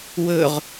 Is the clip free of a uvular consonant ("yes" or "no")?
no